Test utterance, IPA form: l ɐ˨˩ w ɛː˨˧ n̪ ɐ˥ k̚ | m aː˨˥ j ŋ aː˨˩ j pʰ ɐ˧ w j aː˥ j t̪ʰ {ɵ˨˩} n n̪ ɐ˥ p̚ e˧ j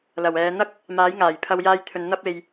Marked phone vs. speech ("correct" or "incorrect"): incorrect